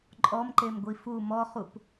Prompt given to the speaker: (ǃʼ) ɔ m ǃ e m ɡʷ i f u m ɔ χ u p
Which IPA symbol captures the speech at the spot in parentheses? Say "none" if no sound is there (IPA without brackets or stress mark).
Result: ǃʼ